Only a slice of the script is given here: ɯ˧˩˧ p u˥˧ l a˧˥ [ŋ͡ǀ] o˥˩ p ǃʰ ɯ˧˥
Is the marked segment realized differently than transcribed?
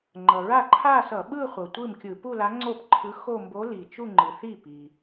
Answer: no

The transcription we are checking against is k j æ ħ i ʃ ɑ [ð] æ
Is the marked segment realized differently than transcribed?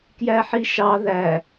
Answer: no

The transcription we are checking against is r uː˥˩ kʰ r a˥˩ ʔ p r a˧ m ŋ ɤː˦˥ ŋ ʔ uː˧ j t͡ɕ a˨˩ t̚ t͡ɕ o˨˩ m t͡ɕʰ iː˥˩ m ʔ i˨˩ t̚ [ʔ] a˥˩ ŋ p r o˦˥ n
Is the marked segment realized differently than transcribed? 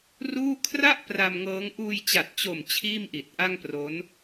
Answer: no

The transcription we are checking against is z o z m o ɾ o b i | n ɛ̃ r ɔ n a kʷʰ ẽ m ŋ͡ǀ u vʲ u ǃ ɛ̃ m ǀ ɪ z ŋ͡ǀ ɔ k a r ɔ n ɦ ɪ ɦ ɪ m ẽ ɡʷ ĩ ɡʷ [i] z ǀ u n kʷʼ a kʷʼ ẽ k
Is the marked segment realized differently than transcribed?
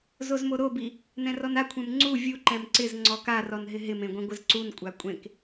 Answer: yes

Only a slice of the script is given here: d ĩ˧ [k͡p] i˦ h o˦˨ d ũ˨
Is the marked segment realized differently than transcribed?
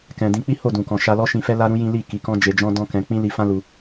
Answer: no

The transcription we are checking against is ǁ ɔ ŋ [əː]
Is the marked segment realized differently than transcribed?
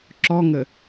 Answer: yes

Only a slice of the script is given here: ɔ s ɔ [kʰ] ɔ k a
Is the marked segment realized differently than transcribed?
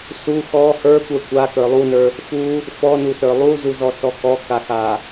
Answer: yes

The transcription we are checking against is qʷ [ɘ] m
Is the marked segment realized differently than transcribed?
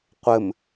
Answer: no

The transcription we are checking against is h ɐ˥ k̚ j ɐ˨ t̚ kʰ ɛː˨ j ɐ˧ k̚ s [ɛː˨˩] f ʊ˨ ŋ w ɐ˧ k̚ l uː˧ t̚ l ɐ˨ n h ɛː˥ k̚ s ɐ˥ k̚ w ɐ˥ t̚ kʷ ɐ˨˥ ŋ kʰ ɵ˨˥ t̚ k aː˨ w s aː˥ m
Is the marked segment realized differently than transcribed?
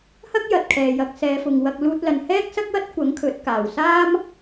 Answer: yes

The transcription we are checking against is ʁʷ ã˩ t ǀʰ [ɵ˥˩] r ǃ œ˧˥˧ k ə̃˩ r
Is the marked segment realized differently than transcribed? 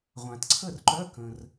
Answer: yes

